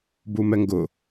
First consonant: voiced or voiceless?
voiced